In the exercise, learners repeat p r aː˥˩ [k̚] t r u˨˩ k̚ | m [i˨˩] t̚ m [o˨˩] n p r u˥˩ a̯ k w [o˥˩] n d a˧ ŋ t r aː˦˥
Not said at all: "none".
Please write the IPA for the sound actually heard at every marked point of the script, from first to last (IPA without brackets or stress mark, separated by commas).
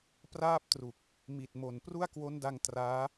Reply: p̚, i˨˩, o˨˩, o˦˥